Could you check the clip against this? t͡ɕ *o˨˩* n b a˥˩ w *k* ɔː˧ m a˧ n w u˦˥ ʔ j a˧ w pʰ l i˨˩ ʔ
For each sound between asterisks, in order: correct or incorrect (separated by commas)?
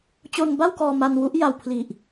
incorrect, correct